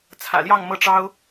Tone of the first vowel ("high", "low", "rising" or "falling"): low